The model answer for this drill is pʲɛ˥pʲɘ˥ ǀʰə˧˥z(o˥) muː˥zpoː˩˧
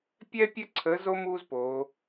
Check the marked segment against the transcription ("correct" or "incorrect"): correct